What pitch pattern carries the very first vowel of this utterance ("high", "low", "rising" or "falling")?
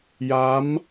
rising